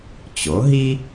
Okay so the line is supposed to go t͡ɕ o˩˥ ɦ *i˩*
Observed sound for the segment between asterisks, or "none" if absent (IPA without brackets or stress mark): i˥